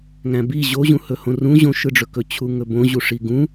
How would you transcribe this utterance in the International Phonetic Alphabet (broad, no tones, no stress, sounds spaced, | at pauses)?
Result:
ŋ æ̃ b i ʑ o ʑ ũ h ɵ h õ r ũ ʑ õ ʃ ɯ ɖ͡ʐ ɵ k ɵ t͡ɕʰ u ŋ ɵ b õ ʑ u ʂ i ɡ ũ